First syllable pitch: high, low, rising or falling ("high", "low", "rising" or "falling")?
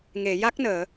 low